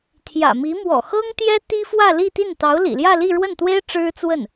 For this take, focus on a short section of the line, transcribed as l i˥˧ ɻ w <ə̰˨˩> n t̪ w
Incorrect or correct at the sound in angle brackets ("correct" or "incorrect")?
incorrect